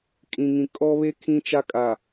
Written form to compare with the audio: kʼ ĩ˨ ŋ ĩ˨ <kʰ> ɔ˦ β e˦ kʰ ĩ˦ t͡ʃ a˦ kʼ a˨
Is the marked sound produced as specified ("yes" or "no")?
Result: no